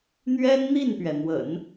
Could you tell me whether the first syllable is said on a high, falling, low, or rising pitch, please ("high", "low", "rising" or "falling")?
high